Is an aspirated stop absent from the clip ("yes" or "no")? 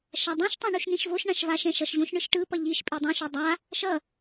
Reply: yes